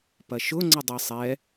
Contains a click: yes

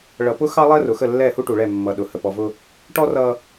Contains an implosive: yes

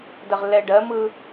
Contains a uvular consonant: yes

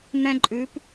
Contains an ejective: yes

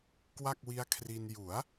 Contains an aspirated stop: yes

